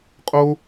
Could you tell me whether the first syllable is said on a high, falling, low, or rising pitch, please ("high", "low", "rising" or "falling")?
low